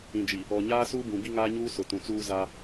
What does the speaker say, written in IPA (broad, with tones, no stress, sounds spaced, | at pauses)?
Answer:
ĩ˨ d͡ʒ i˨ | ɔ˨ ɲ aː˦ s uː˦ b ũ˨ b i˦ ŋ aː˦ ɲ uː˦ s ʊ˨ t ũ˨ t͡s uː˦ z a˦